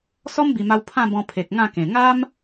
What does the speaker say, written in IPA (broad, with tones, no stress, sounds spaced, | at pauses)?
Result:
s ɔ˦ m b i˨˩ m a˧ w pʰ ã˥˧ b ɔ̃˧ pʰ e˨ k̚ ŋ ã˥˧ k ẽ˨˩ ŋ a˦ m